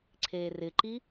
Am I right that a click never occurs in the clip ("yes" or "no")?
no